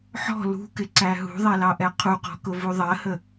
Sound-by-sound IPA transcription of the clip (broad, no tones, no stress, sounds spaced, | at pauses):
ħ ɔ̤ l ṳ k ɪ ǀ æ ɦ ṳ ðˤ ɛ l ɑ ʔ ɛ qʰ u q ɔ̤ k ʊ v u ðˤ ɜ h ə